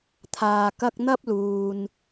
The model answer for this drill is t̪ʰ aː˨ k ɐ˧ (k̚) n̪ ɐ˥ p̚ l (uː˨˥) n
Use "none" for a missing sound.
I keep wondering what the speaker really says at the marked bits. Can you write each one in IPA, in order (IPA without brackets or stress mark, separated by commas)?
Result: k̚, uː˨